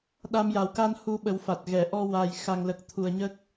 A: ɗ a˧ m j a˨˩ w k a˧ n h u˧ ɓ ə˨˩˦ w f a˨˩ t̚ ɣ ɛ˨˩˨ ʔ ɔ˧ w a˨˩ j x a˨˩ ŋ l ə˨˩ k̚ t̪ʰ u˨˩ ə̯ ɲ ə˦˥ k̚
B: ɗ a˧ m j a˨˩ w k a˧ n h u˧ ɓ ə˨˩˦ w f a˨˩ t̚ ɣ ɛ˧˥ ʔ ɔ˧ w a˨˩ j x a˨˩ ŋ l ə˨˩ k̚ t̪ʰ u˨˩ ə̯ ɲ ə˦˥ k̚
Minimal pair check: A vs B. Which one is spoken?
A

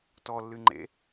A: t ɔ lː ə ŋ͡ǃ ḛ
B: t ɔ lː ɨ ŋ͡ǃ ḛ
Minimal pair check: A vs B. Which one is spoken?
B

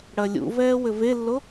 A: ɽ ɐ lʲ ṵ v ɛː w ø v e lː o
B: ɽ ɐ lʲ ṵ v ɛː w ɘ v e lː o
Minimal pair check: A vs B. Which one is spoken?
B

